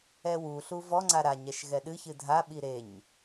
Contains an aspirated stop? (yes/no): no